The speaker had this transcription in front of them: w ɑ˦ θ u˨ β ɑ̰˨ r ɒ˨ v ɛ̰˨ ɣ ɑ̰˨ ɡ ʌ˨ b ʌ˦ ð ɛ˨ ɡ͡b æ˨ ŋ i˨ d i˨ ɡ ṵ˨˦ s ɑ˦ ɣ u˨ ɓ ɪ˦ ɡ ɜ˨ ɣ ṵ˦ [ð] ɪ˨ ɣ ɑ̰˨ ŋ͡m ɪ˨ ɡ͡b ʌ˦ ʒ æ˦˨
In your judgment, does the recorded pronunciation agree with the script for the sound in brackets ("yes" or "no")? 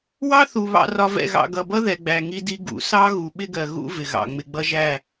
no